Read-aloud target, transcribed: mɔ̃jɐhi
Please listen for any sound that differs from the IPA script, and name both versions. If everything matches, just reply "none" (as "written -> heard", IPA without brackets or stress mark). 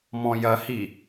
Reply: none